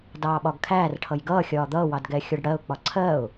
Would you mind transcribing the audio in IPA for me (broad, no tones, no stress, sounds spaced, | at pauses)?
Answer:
d ɑː ɓ ɒ ɡ kʰ æː r ʈʰ ʌ j ɡ ʌː xʲ ɒː d̪ ʌː w ɑ d ɡ ɛ xʲ ɔ ɖ ɽ ɜ ʊ̯ k͡p ɒ ǀʰ ɜ ʊ̯